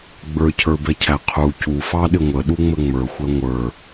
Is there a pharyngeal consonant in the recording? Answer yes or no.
no